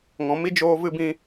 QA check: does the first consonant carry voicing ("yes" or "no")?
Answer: yes